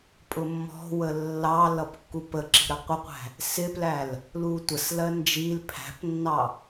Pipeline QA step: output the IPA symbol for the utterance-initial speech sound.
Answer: pʼ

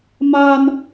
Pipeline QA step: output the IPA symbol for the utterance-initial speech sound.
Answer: m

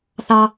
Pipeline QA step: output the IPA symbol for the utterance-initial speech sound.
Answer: θ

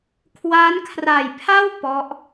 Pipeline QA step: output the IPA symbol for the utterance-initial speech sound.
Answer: kʰ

